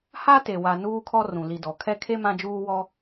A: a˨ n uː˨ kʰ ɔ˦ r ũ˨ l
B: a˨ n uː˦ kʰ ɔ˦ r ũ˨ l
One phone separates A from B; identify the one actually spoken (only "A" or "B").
B